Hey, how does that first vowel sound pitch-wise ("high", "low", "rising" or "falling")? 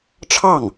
falling